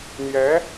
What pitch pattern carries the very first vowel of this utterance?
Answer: rising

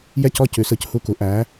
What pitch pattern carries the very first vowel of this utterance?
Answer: falling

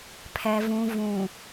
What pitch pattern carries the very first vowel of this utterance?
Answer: low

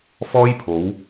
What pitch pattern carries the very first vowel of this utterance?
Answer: high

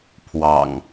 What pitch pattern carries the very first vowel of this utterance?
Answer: low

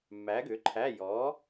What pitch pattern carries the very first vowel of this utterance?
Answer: rising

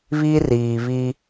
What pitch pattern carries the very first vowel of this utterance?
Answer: high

